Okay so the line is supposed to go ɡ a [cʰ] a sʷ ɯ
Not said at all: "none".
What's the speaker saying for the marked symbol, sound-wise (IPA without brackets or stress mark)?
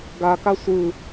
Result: k